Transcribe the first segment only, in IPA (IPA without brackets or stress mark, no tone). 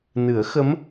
n